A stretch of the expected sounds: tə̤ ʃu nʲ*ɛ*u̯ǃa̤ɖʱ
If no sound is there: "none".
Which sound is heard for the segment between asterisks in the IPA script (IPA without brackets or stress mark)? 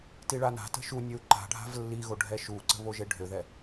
ø